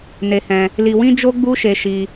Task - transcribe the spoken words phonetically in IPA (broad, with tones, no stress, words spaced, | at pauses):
ne˧hɛ̃˧ | li˧wĩ˦d͡ʒo˦ ɡ͡bu˦ʃe˧ʃi˧